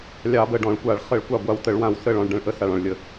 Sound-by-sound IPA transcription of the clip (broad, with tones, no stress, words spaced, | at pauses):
lʲɑ˧˩˧bə˧˩ɖɔ̃˧˩˧ɭkʷa˧˩˧ɭ χə˧˩˧ɭkʷɑ˧˩ ɡʷa˧˩wtə˧˩˧ɭwã˧˩w sə˧˩ɭ ɔ̃˧˩ɭɖə̃˧˩ɭʔə˧˩ sa˧˩ɭɔ̃˧˩ɭlʲə˧˩˧